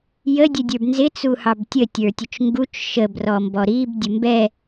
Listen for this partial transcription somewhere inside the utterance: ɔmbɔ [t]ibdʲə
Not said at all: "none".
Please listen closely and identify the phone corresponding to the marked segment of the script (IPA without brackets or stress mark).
ɾ